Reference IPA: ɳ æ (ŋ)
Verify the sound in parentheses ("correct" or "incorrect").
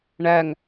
correct